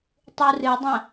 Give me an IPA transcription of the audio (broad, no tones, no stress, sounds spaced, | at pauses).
tˤ u r ɨ dˤ ɐ̃